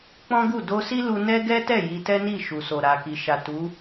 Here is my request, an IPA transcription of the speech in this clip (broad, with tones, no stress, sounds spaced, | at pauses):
k͡p ɔ̃˦ ɡ u˦˨ d o˧ s i˦ l u˧ n ɛ˦ ɡ ɛ˦ t ɛ˦˨ j i˧ t ɛ˦ n i˦˨ ʃ u˨ s o˨ ɾ a˨ k i˨ ʃ a˨ t u˨˦